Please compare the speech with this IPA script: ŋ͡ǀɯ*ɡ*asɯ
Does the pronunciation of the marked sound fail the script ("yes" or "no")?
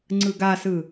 no